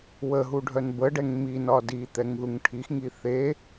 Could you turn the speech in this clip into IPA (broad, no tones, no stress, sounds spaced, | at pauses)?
w ə ɦ u ɖʱ œ n b ə ɖ ɛ ŋ m i n ɒ d i t̪ ɛ ŋ ð u ŋ ʈʰ i x ŋ i θ e